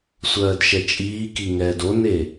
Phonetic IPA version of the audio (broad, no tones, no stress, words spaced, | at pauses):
sʷɜːdʃɛt͡ʃʼiːki ŋɛːdone